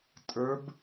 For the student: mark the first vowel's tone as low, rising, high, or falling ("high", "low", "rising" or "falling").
rising